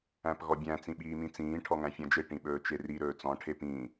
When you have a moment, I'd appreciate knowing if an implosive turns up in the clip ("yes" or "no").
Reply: yes